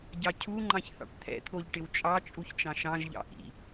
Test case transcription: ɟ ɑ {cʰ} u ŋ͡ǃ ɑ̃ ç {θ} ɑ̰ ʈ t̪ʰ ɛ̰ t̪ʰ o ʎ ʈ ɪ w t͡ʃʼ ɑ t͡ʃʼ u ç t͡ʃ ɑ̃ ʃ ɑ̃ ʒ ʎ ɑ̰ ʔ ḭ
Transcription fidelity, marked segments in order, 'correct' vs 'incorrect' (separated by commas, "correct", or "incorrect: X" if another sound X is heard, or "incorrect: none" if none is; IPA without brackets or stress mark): correct, correct